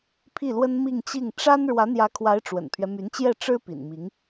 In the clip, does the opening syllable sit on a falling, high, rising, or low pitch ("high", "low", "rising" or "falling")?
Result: falling